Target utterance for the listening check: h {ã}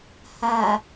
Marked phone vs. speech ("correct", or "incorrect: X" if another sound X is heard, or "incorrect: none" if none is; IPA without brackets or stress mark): incorrect: a